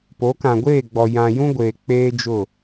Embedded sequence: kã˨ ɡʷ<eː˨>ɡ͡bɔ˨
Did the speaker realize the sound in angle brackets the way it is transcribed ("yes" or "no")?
no